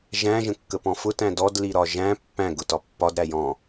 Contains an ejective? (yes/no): no